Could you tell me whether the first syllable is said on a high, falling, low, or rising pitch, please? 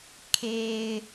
low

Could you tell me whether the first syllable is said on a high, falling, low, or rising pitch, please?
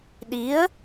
rising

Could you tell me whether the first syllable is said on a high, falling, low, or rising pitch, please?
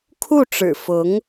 falling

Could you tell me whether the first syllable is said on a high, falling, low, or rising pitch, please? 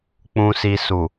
low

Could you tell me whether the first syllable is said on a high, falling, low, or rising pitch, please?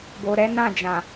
low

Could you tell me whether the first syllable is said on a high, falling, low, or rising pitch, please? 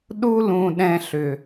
high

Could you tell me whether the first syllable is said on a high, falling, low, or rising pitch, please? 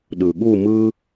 low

